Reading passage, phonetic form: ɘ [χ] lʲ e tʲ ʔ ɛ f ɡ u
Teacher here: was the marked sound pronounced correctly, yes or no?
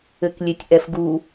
no